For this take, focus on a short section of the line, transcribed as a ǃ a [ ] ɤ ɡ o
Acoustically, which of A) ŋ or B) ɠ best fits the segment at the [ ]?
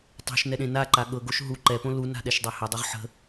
B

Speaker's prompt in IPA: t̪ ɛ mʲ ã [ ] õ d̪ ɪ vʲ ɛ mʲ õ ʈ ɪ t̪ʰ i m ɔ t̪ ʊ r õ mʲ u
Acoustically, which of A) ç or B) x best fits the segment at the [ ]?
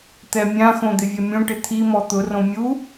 B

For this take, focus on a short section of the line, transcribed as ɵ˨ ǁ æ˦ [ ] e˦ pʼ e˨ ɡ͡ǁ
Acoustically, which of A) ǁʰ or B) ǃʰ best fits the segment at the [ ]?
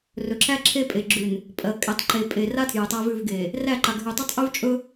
A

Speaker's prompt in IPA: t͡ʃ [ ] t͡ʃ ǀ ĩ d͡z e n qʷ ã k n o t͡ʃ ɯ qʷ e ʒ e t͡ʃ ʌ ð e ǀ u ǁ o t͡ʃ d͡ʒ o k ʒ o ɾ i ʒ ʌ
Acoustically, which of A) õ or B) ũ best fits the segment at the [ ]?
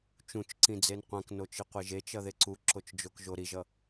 B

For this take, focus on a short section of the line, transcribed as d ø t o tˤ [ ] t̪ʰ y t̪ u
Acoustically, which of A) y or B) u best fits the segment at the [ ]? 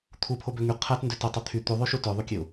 A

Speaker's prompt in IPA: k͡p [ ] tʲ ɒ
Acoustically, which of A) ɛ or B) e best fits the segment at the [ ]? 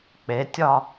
B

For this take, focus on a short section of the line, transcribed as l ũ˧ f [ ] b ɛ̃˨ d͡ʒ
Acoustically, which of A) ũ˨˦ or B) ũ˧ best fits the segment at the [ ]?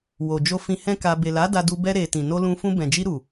B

